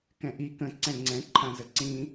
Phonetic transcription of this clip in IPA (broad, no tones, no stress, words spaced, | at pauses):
kɛ̃ʔi kə̃ ǀɛ̃ŋ͡ǀɛ̃ ǃʰãzəǀĩ